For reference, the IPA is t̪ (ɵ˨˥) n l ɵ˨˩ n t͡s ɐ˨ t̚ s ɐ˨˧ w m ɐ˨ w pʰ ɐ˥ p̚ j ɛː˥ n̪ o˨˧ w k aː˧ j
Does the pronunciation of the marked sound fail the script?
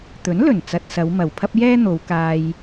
no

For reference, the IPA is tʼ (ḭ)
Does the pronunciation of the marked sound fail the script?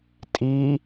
yes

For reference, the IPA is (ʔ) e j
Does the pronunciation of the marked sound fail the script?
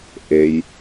no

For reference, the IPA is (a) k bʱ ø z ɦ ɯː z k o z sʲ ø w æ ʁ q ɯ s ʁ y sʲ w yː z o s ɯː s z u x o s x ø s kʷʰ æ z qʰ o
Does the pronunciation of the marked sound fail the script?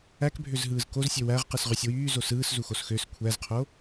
yes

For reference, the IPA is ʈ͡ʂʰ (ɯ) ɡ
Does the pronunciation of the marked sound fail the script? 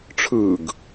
no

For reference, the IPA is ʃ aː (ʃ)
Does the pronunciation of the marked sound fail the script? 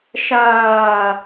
yes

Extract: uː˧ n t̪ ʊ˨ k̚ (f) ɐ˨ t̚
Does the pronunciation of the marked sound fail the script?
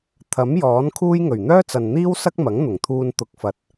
no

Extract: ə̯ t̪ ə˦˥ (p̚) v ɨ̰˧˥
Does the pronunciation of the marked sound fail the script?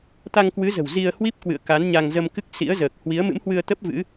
no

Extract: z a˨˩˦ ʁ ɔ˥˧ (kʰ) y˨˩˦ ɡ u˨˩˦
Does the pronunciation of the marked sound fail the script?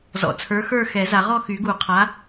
yes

